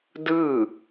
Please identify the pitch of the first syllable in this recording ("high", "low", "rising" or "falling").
falling